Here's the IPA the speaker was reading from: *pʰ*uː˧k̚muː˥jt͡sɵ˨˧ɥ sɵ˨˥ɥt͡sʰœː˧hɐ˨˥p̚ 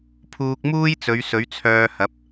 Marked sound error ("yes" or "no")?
no